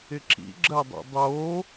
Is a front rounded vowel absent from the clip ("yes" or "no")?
yes